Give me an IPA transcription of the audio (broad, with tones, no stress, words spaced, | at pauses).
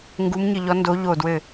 ŋɡu˨˥mɲɨ˧˩ʎɔ˨˥ ndo˨˥ʎo˧˩ dwɘ˧˩